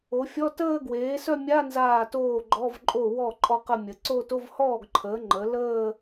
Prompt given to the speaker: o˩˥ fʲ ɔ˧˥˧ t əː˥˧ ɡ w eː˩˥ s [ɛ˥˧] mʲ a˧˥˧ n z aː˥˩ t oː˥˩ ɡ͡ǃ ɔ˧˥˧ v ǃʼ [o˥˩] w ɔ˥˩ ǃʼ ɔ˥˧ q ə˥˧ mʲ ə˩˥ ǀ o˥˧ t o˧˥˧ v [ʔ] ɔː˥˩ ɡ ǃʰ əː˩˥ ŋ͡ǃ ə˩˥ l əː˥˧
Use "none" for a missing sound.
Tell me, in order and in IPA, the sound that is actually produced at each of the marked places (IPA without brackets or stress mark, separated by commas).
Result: œ˥˧, o˥˩, h